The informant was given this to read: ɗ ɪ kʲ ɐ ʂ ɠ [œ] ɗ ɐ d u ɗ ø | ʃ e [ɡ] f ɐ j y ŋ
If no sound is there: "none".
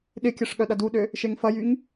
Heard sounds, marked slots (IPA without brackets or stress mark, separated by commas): œ, ŋ